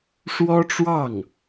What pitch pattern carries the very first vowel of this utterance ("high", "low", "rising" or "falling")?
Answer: high